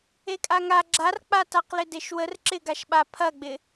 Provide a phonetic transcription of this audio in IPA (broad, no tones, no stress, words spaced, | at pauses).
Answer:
ekʼaŋa ɡ͡ǁark͡pataqlɪ deʃwər ǁɪɡaʃɓa pʰɐɡ͡bɪ